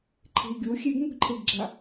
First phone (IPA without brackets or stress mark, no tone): ǃʰ